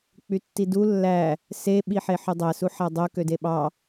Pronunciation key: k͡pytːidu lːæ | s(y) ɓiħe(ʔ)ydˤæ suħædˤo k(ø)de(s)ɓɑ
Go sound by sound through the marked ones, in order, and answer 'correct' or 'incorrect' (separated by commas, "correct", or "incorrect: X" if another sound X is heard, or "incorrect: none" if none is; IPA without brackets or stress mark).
incorrect: e, incorrect: ħ, correct, incorrect: none